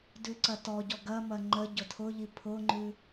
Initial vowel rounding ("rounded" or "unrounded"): rounded